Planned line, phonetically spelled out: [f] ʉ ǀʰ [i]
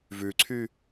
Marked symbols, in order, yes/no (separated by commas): no, no